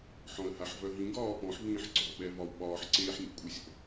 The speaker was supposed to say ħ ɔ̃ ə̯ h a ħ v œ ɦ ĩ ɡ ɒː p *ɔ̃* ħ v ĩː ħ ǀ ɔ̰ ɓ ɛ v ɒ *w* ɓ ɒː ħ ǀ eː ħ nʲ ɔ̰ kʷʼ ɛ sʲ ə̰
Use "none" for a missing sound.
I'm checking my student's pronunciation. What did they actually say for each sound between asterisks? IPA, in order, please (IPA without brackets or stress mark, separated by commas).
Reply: ɔ̃, w